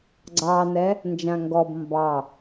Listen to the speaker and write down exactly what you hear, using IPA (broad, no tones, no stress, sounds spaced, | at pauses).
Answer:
ɡ͡ǀ ɑ n ɛ | n d͡ʒ ã ŋ ɡ ɔ b m b ɑ